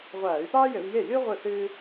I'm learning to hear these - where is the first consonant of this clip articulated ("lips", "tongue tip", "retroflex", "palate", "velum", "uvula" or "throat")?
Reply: uvula